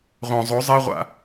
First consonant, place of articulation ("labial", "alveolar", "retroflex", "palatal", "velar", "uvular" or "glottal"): uvular